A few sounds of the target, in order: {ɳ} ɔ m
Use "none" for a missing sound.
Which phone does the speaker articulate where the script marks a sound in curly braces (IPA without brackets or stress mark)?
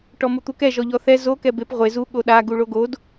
ʈ